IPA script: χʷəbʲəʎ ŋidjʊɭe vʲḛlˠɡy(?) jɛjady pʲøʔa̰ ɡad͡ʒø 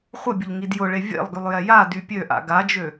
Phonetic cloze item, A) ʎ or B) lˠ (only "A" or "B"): B